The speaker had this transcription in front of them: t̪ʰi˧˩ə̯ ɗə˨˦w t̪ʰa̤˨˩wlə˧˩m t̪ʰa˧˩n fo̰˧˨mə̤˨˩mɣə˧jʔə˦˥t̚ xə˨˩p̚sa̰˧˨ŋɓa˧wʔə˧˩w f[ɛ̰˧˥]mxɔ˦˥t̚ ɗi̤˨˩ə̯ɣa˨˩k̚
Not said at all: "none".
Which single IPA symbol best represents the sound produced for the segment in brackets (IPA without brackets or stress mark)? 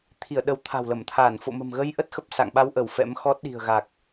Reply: ɛ̰˧˥